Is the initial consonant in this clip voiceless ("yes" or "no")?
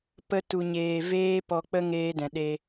yes